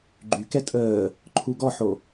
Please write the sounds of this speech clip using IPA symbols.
ɡ͡ǃ y k ɛ tʼ əː | ǃʰ u ɡ ɔ ħ o

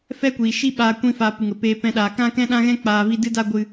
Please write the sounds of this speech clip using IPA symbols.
f ɛ˦ kʷ iː˨ ʃ i˦ ɓ aː˧ kʷ ĩ˧ f a˨ p ɨ˨ ŋ ə˨ p eː˧ p ɛ̃˧ ɗ aː˨ k ã˦ k ɛ̃˦ ɗ ã˦ ɣ ɛ̃˦ k͡p aː˧ v i˦ d ɨ˦ d a˦ ɡʷ ɨ˧

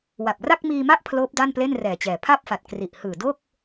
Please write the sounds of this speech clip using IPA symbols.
w a˨˩ p̚ r a˥˩ k̚ m iː˧ m a˥˩ ʔ pʰ l oː˦˥ p̚ d a˥˩ n p l e˥˩ n r ɛː˨˩ t͡ɕ ɛː˨˩ pʰ a˥˩ p̚ f a˨˩ t̚ k r i˨˩ ʔ h ɯː˨˩ d o˥˩ k̚

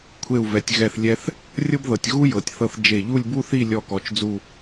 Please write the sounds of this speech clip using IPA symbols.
kʷʰ e˧˩ u̯ v ɛ˩˧ tʲ ɣ ɛ˧˩ θ lʲ ɛ˧ θ | rʲ ɤ˥ b ð ɤ˩˧ tʲ ɣ u˥ j ɤ˩˧ tʲ θ ɤ˧ θ d͡ʒ e˧˩ ʎ u˥˧ lʲ b u˥ θ i˥˧ lʲ ɔ˥˧ k ɔ˧ t͡ʃ d͡z u˥˧

